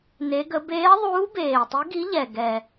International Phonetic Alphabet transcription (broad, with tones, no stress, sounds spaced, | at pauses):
n e˧˥ ɡ ə˧˥ b eː˧˥ ðˤ uː˧˥ b eː˨˩ tˤ i˧˥ ɡ i˧˥ ʎ ɛ˨˩ ɡ ɛ˨˩